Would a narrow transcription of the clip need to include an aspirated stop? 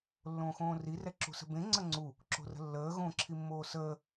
yes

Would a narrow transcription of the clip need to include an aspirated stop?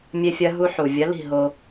no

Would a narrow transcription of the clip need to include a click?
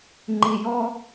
yes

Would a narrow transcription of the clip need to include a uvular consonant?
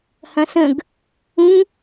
no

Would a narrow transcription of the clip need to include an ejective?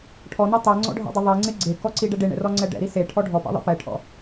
no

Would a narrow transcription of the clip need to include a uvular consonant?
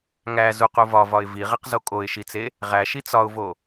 yes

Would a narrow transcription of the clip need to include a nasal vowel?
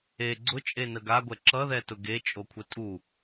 no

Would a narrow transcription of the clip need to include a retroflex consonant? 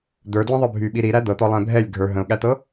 no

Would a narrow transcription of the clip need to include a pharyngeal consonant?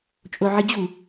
yes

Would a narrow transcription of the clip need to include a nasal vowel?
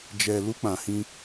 yes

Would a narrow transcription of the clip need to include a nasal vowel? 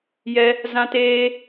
yes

